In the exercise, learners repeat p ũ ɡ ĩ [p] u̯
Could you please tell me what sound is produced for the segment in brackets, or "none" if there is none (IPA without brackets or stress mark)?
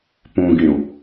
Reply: none